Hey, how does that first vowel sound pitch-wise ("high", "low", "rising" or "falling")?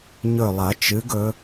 falling